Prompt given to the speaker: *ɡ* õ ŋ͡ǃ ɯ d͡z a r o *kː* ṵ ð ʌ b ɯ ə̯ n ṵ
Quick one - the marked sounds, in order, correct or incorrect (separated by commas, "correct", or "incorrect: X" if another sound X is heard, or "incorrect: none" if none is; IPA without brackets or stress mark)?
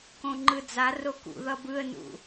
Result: incorrect: k, incorrect: k